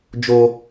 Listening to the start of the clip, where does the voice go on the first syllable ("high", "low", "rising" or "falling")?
high